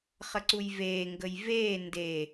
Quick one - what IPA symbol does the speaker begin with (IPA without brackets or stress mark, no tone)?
χ